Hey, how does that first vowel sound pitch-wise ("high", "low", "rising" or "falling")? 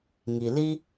low